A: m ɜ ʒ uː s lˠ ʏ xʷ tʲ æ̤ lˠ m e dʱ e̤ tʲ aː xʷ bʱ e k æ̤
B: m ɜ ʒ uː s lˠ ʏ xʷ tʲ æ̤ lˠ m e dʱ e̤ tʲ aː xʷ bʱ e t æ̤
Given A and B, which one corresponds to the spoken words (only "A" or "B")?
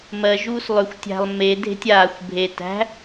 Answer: B